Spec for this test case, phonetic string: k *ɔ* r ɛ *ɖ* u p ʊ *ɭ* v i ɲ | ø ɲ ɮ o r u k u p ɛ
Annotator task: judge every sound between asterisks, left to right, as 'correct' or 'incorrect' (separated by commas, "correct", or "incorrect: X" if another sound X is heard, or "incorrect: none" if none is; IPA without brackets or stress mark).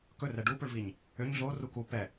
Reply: incorrect: ɵ, correct, correct